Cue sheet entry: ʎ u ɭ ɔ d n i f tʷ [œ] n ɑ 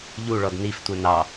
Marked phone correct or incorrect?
correct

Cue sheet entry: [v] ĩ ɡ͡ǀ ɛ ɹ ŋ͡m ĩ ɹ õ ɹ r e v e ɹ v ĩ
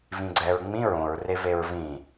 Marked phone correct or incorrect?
correct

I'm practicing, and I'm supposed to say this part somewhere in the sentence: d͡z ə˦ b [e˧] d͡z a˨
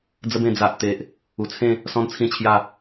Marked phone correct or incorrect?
incorrect: ẽ˧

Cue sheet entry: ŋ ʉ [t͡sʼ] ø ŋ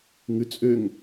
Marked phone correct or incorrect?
correct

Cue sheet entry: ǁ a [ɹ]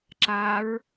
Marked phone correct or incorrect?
correct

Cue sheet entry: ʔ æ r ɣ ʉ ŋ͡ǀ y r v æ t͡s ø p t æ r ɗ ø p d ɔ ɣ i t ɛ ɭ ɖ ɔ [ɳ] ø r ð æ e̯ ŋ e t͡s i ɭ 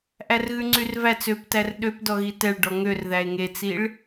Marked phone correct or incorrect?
incorrect: ŋ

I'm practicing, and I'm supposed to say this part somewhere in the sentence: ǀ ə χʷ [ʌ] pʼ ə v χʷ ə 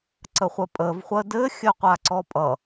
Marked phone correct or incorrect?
incorrect: ə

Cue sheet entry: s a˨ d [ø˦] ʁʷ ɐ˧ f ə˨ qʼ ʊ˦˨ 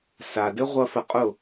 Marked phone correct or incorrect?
incorrect: ɘ˦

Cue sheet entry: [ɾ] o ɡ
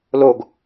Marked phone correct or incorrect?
incorrect: l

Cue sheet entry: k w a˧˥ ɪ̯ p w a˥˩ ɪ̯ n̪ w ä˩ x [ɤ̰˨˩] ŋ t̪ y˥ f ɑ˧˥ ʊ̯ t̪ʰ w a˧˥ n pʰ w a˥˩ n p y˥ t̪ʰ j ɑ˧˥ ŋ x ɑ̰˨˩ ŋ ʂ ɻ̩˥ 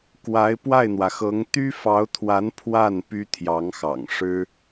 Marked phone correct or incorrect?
incorrect: ɤ˧˥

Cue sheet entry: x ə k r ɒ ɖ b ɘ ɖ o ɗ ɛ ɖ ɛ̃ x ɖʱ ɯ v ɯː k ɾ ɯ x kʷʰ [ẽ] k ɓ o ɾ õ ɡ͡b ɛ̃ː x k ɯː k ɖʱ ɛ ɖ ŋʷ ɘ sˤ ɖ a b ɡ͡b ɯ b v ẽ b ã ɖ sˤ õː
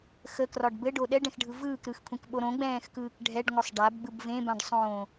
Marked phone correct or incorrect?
correct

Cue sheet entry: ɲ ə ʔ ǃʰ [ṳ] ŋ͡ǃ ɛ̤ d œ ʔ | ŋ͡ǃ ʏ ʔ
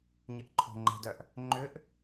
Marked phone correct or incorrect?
incorrect: o̤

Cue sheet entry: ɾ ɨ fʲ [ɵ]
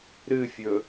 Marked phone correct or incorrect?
correct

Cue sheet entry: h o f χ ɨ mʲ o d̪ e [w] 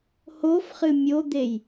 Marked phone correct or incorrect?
incorrect: j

